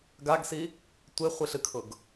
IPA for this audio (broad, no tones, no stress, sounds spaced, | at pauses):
ɡ a ɡ s i | tʷ e χʷ i ɬ ɨ kʰ ʊ ɡ